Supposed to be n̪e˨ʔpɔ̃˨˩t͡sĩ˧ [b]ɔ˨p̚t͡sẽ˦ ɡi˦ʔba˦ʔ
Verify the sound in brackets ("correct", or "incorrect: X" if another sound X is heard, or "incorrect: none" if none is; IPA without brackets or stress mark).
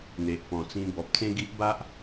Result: correct